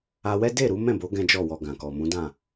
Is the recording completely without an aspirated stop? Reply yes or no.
yes